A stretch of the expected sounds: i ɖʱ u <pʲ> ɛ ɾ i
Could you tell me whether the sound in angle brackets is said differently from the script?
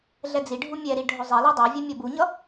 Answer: yes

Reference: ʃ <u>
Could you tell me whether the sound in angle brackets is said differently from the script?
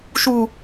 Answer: no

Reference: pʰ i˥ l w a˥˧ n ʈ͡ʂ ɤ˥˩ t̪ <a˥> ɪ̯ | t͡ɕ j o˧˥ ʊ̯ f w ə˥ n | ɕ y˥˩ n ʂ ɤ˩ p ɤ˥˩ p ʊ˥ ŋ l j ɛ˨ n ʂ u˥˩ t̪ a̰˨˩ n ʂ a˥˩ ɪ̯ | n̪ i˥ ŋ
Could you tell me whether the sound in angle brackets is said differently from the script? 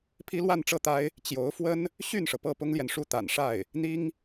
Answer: no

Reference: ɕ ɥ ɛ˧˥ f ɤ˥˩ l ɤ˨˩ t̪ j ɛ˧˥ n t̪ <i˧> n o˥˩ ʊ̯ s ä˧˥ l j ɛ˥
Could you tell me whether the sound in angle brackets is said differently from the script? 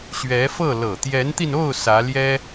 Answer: no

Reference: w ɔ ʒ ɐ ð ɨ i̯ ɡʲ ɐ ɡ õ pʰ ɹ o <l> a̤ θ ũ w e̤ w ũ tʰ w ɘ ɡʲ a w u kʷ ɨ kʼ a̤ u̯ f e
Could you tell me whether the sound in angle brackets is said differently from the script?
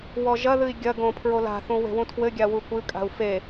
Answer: no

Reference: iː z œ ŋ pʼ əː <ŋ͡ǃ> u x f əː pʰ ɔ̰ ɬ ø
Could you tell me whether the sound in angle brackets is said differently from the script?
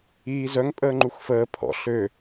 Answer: no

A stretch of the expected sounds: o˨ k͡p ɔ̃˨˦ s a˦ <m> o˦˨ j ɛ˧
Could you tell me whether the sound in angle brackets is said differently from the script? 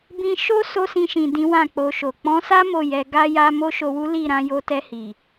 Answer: no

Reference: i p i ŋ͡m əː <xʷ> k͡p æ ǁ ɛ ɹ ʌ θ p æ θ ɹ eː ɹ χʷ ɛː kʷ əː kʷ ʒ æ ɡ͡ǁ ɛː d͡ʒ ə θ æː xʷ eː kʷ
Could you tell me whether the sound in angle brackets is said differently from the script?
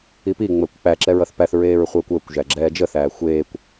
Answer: yes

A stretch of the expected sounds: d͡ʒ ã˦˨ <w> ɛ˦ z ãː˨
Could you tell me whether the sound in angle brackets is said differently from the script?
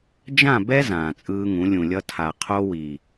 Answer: yes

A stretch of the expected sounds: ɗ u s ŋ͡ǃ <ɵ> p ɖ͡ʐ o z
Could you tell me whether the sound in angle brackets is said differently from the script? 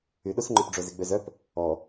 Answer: yes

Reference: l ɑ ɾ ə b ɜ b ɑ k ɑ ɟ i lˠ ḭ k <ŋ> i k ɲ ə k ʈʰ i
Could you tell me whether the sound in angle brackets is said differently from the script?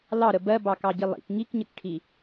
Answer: no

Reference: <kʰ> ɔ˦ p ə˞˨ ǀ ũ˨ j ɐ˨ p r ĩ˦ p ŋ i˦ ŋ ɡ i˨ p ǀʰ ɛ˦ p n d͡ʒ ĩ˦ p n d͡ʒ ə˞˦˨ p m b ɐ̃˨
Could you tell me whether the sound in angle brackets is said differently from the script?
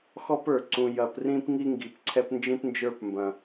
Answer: yes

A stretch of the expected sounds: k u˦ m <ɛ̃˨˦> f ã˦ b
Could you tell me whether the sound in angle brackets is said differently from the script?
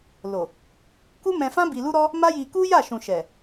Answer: yes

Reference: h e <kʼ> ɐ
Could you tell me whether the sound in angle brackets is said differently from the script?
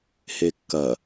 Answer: yes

